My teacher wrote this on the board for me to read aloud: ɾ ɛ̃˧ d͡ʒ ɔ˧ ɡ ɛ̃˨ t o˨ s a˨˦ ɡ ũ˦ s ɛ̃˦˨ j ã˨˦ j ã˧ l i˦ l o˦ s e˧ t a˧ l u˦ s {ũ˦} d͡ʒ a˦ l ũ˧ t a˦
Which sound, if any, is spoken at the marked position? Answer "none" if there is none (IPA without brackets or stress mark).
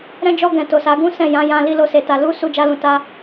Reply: u˦